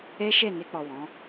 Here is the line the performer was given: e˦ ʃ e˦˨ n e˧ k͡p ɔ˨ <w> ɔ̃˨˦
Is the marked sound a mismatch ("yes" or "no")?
no